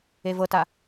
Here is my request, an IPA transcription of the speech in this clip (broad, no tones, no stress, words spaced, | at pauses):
evɤta